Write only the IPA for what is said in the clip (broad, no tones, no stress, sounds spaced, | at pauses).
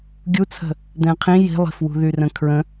ɡʲ u t͡sʰ ə̤ | d̪ ɛ̃ qʰ ĩ j i̤ lˠ i̤ f w ṳ ð y r ə̃ kʰ ɹ ə̃